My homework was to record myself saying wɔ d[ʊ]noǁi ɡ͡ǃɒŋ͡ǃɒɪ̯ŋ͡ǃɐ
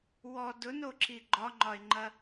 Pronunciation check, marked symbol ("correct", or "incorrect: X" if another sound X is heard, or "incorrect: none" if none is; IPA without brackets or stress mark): correct